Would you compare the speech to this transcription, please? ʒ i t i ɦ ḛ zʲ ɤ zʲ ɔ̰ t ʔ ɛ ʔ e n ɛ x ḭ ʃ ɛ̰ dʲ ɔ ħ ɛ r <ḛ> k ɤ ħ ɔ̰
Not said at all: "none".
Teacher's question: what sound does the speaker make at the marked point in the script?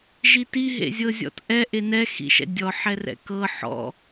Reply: ɛ̰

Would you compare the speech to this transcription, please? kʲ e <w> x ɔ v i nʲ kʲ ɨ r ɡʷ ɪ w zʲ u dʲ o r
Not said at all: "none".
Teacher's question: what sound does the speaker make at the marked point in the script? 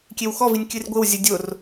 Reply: w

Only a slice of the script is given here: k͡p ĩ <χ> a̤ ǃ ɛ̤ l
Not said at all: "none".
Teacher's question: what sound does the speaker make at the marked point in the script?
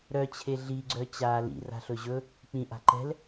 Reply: ʔ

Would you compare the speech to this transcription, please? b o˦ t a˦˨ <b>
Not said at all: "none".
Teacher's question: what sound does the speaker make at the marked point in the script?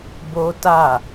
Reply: none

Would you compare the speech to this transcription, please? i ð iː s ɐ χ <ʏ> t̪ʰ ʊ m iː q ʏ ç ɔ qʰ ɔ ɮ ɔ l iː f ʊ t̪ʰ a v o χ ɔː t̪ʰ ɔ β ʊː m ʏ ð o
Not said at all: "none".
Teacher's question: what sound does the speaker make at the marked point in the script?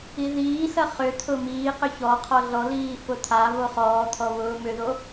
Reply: ʏ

